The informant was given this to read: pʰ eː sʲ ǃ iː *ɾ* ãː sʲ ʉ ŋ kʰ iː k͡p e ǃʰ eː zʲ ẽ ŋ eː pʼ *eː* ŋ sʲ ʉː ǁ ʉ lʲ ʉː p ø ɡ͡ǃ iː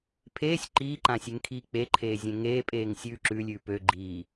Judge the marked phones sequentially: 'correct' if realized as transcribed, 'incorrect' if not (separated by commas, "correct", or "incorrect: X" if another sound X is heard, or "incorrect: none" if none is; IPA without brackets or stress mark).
incorrect: ǃ, correct